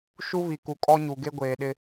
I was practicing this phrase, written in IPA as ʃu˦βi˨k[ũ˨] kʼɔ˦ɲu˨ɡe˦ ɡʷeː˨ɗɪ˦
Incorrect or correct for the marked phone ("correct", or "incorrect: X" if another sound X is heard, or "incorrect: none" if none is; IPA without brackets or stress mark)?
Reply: incorrect: u˨